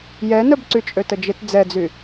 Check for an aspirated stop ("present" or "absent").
absent